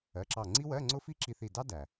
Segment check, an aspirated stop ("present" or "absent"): absent